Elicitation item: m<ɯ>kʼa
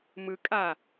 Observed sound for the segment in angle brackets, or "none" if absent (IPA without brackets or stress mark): ɯ